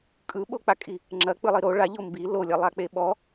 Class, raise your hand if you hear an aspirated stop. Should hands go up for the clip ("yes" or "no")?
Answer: no